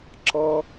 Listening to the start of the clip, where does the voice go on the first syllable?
high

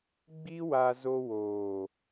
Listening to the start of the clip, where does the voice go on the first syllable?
high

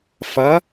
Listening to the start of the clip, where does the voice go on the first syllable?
rising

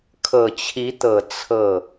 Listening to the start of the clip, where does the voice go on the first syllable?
low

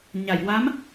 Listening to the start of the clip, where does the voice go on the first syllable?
low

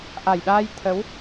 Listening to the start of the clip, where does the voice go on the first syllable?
low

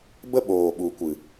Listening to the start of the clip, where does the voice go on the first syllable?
high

